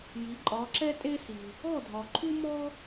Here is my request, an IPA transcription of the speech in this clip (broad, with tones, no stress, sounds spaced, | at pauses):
j i˨˦ ǃʼ ɒ˨˦ ǁ ɛ˥ tʼ e˥ s i˨ | ɔ˥˨ dʱ ɒ˨ ǃʰ u˥ m ɔ˥